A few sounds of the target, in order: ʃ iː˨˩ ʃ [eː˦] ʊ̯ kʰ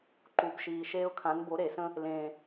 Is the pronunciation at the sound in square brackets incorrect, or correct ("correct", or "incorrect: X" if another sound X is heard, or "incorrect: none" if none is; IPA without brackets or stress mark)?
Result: correct